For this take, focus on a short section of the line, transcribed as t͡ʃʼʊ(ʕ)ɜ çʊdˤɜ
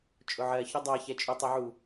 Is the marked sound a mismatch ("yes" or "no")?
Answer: no